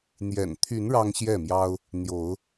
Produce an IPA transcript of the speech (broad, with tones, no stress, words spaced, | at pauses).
n̪jɛ̰˨˩nt̪ʰy˨˦n ɻɑ˦ŋɕjɛ˥˨mjɑ˦ʊ̯ | n̪jo˨˦ʊ̯